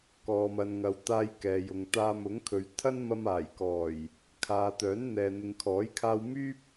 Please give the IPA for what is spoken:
k ɔː˨ m ɐ˨ n ŋ ɐ˨ w t̪ aː˧ j k ɛː˨ j ʊ˨ ŋ t̪ aː˧ m ʊ˨˥ ŋ kʰ ɵ˨˧ ɥ t̪ʰ ɐ˥ n m ɐ˧ m aː˨˩ j k ɔː˨˩ j | kʰ aː˨˧ t̪ œː˨˥ n n̪ ɛː˨ n̪ ɪ˨ ŋ kʰ ɔː˨˥ j kʰ aː˧ w m yː˥ p̚

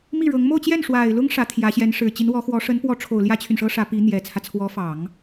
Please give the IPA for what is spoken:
m i˥˩ ɻ ɤ˧˥ ŋ m o˥˧ ʊ̯ t͡ɕ j ɛ˥˩ n ʂ w a˨˩ ɪ̯ l ʊ˥ ŋ ʂ ä˧˥ t̪ʰ j ä˧˥ ɕ j ɛ˧˥ n ʂ ɻ̩˨˩ t͡ɕ i˧˥ n w ɔ˧˥ x w ɔ˧˥ ʂ ə˧˥ n p w ɔ˧˥ ʈ͡ʂʰ o˨˩ ʊ̯ l j ä˥ t͡ɕʰ y˨ n ʂ ɤ˥ ʂ ä˧˥ p i˧˥ n̪ j ɛ˨˩ t͡sʰ ä˦ t͡sʰ w ɔ˧˥ f ɑ˨˩˦ ŋ

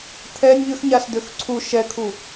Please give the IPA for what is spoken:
t̪ʰ ɛ nʲ ʎ ʏ x ɲ a s d̪ ʏ x ǀʰ u ʃ ɛ kʰ u

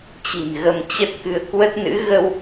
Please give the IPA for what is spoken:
t͡ɕ i̤˨˩ n ɣ ə˧ m t͡ɕ ə˦˥ t̚ k ɨ˧ ə̯ k w ə˦˥ t̚ n ɨ̰˧˥ ɣ ə˧ w

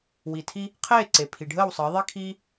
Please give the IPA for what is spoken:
w i˩ tʰ i˧ | qʰ eː˥˩ ǀ e˩ pʰ i˩ ɖʱ əː˥˩ w sˤ əː˩˥ ðˤ i˥ kʰ iː˥

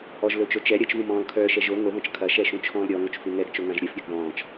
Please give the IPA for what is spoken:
ʔ ɔ ʒ l ɵ t͡ʃ o t͡ʃ ɛ ɾʲ ɐ t͡ʃ v ũ m ɔ̃ː l kʰ œː ʃ ɛ ʒ o ŋ o ð ɔ̃ t͡ʃ kʰ ɐ ʃ ɛ ʃ ũ t͡ʃʰ ɔ̃ː l ɾʲ ɔ ŋ o t͡ʃ f u ŋ ɛ ɡ t͡ʃ o ŋ ã ʒ ɾʲ œ f ɾʲ ɵ ɡ ð ɔ̃ː t͡ʃ

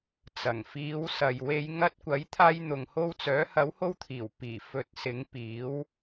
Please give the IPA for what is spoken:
t͡s ɐ˨˩ ŋ f iː˨˧ w s ɐ˨ j w e˨˧ j ŋ ɐ˧ t̚ kʷ ɐ˨˥ j t̪ʰ aː˧ j n̪ ʊ˨ ŋ h o˧ w t͡s œː˨˥ h ɐ˨˥ w h o˧ w t̪ʰ iː˨˩ w p iː˨˩ f ɵ˧ t̚ s ɪ˨˥ ŋ p iː˨˥ w

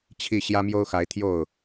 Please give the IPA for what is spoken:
t͡ɕʰ i˥˨ ɕ j ä˦ m j o˦ ʊ̯ x a˨˦ ɪ̯ t̪ʰ j o˥˨ ʊ̯

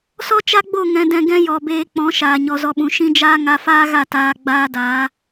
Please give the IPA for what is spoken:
s ɔ˦ t͡ʃ a˦ ɡ͡b o˦˨ ŋ ɛ̃˨ d ɛ̃˨ ɡ ɛ̃˦ j ɔ˨ b eː˧ k͡p ɔ̃˨˦ ʃ aː˨ ɲ ɔ˨ z ɔ˧ ɓ ũ˨ ʃ ĩ˦ d͡ʒ aː˦ ŋ a˧ f aː˦ ɣ a˦˨ t aː˧ ɡ͡b aː˦ d aː˨˦

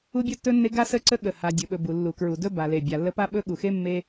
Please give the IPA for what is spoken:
u˥ bʲ ɵ˥ tː ɵ˥ nː e˥ ɡ a˥ s ə˥ ǀ ə˥ ɠ ə˩ h a˩ dʲ ɵ˩ ɓ ɵ˩ b u˩ lː u˩ k ɹ u˩ d ɵ˥ b a˩ l e˩ bʲ a˩ lː ə˥ p a˥ ɓ ɵ˥ ɠ u˩ x e˥ mː e˥

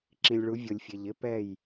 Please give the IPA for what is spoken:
ǁ ĩ˨ lʲ ɭ u˨˦ vʲ o˨ lʲ fʲ e˨ ʎ ɪ˦ p ɛ˦˨ j

